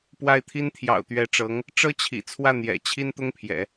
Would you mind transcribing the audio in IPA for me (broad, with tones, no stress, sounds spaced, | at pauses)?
p w a˥˩ ɪ̯ t̪ʰ i˥ n t̪ʰ j ɑ̰˨˩ ʊ̯ t̪ ɥ ɛ˧˥ ʈ͡ʂ ɤ˧˥ ŋ | ʈ͡ʂ ɤ˥ t͡ɕʰ ḭ˨˩ t͡sʰ w ä˥˩ n̪ j ɛ̰˨˩ t͡ɕʰ i˥ n t̪ ʊ˥ ŋ pʰ j ɛ̰˨˩˦